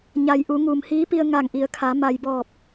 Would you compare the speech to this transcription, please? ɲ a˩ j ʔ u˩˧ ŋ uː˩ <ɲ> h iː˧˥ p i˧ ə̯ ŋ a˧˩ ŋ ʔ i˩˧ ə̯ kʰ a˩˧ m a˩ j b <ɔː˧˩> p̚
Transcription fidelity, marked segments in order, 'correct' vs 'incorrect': incorrect: m, correct

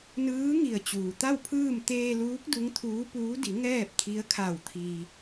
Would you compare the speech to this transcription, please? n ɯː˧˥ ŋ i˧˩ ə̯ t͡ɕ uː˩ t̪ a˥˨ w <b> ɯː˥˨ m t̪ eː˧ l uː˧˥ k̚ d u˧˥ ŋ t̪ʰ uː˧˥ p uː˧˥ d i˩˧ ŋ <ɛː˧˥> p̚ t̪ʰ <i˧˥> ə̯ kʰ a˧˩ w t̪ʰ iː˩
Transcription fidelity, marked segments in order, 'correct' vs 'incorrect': incorrect: pʰ, incorrect: ɛː˥˨, correct

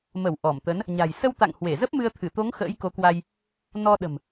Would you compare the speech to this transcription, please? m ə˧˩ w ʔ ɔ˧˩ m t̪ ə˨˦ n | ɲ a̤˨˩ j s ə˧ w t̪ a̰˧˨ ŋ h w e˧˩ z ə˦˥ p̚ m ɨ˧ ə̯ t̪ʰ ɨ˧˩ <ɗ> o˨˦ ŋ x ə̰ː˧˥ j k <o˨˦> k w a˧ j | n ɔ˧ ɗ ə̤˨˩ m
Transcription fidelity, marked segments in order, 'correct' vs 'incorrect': incorrect: t̪, correct

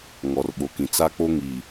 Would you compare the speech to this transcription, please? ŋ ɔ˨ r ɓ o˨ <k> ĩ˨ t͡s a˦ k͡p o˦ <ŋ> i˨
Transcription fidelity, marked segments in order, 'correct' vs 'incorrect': correct, correct

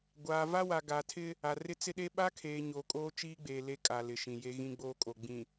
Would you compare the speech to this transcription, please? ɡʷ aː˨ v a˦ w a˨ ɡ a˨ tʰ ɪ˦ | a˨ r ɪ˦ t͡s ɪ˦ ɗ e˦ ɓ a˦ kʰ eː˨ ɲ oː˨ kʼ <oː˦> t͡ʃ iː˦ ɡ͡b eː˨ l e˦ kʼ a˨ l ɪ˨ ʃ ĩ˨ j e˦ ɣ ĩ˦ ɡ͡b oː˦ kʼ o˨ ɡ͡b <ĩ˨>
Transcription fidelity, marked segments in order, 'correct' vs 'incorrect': correct, correct

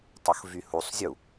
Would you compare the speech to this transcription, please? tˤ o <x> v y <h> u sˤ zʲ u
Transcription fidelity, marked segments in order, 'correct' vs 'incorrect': correct, correct

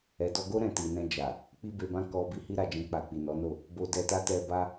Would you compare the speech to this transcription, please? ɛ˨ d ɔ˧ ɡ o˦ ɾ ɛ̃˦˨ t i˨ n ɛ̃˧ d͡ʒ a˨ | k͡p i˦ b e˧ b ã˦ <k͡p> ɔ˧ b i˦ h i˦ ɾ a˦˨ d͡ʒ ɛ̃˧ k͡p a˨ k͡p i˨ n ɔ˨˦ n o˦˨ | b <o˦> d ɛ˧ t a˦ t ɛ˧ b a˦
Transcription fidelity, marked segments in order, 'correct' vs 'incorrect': incorrect: k, incorrect: o˧

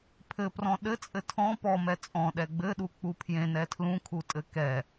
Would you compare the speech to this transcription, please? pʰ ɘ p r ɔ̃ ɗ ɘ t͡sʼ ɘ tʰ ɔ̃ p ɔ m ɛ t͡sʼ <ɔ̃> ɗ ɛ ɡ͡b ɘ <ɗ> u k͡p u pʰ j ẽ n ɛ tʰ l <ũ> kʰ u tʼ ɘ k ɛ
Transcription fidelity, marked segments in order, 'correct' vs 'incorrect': correct, correct, correct

